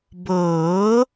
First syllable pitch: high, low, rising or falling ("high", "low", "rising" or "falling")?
rising